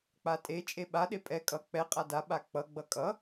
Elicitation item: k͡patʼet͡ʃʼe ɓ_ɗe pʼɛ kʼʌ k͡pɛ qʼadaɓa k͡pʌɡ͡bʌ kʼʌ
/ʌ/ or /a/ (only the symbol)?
a